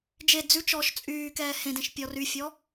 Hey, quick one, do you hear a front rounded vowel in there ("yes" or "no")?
yes